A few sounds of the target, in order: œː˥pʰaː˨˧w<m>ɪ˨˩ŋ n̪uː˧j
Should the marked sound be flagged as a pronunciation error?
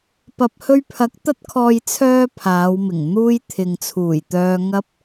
no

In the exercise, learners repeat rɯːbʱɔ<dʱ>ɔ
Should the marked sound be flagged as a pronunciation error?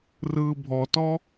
yes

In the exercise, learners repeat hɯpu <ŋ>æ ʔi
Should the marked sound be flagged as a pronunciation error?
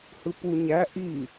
yes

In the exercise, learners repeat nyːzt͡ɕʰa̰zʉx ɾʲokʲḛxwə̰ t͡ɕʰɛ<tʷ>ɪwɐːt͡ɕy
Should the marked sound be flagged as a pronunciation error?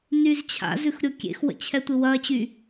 no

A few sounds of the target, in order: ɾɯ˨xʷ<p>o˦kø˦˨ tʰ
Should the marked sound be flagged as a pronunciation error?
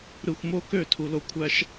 yes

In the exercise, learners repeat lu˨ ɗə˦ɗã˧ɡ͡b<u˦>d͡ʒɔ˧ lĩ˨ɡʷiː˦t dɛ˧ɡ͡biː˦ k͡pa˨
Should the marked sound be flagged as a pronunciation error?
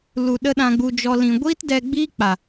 yes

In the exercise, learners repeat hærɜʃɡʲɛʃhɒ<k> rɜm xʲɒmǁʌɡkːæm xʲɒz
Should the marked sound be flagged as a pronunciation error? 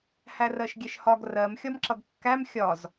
yes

